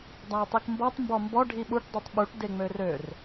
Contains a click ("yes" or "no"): no